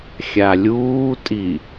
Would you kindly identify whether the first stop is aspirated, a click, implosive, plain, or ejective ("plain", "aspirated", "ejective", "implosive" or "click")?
ejective